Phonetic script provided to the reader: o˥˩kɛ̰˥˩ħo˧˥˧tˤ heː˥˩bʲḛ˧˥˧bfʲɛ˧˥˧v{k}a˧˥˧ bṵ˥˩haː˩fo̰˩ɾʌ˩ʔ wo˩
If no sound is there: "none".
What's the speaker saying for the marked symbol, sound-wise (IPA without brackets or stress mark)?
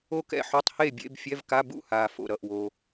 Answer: k